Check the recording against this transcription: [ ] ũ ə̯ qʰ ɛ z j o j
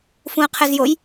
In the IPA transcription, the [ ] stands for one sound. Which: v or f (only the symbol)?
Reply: f